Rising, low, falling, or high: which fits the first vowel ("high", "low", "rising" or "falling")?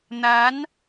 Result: rising